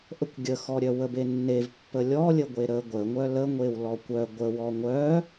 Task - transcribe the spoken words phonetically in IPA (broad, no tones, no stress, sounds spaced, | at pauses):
ʔ ə kʷ ɡʲ ə x ɔ ɾʲ œ w ə b e nː e v pː ə lʲ ɔ lʲ ə ɡʷ e ɾ ə ɡʷ ə ŋʷ œ l ə ŋʷ e w l ɔ kʷ œ ɡʷ ə w ɔ ŋʷ œ